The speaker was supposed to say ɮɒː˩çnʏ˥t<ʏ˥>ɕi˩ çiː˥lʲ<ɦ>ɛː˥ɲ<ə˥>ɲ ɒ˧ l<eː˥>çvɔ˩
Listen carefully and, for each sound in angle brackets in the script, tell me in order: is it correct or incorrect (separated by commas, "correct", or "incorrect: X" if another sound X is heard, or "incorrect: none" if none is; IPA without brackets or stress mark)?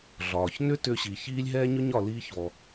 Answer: incorrect: ʏ˧, correct, incorrect: ʏ˥, incorrect: iː˥